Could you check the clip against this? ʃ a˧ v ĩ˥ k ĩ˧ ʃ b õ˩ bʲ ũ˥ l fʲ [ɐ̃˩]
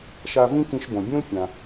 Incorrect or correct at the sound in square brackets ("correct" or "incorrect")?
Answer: incorrect